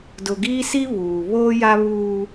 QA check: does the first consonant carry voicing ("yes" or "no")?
yes